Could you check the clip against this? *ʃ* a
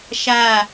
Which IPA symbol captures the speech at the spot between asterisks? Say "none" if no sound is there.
ʃ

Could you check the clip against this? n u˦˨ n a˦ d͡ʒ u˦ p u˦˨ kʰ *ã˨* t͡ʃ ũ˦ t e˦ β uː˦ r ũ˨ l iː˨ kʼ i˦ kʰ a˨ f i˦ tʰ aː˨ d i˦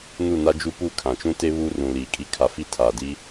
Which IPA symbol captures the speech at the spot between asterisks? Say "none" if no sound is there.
ã˨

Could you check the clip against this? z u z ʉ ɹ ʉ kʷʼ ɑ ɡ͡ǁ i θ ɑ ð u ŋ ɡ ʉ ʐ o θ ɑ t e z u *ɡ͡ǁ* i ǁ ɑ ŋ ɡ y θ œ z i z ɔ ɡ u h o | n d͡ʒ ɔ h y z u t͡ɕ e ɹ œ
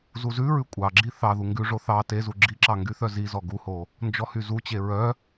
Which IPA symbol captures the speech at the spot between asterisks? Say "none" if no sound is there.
ɡ͡ǁ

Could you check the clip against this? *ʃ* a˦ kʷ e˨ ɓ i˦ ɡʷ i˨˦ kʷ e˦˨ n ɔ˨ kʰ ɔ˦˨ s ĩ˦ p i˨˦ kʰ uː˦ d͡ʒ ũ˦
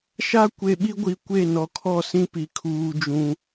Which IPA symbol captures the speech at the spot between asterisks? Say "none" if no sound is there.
ʃ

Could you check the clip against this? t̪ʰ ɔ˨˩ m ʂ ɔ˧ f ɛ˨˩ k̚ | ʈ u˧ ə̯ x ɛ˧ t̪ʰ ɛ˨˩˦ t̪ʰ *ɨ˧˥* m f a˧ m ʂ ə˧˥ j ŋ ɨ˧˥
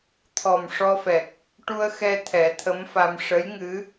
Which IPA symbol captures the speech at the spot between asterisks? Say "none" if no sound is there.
ə˧˥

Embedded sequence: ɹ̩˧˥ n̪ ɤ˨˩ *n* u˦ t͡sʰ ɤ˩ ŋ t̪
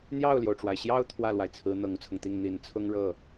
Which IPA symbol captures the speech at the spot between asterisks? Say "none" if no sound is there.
ŋ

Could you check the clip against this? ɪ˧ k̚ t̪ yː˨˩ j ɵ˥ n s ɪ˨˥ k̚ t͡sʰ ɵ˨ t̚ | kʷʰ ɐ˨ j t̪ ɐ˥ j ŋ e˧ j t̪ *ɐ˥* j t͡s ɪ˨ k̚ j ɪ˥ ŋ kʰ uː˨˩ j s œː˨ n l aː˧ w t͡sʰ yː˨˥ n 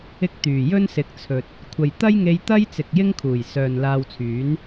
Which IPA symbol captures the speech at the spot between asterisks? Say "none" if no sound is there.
ɐ˥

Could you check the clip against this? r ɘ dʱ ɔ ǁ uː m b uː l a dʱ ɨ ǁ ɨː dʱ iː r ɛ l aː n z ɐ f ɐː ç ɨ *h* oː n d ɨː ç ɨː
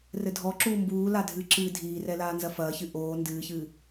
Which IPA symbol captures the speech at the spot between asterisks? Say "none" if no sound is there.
ʔ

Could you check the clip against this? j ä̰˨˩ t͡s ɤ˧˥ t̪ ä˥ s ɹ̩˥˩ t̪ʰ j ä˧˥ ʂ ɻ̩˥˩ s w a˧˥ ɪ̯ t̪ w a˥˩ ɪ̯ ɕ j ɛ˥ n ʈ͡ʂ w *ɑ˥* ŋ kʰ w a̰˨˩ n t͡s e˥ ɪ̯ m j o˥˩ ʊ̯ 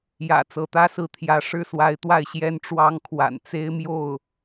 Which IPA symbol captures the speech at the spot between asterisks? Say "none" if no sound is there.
ɑ˥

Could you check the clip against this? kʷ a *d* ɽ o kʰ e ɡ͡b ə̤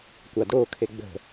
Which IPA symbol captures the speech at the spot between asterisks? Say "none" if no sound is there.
d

